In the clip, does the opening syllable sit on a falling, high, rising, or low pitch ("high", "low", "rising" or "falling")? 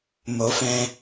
rising